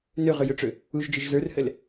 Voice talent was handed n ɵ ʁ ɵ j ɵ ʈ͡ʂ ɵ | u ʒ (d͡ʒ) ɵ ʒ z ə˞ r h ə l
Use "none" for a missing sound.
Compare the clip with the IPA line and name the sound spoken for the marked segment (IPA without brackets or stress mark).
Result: d͡ʒ